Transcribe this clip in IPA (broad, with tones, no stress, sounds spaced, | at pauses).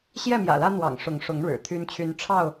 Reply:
ɕ j ɛ˥˨ m j ä̰˨˩ l ä˦ n̪ w ɑ̰˨˩ ŋ ʂ ʊ˨˦ ŋ ʂ ʊ˨˦ ŋ ɻ ɻ̩˨˩ t̪ʰ y˦ n t͡ɕʰ y˦ n ʈ͡ʂʰ ɑ˥˨ ʊ̯